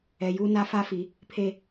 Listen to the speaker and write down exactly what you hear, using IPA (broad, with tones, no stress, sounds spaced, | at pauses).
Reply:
ɛ˨ j uː˦ n a˦ f a˦ f i˨˦ | pʰ e˦